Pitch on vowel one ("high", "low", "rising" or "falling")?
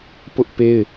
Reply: high